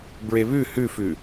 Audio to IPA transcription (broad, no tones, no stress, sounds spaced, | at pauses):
b ɹ e β ʉ h ʉ f ʉ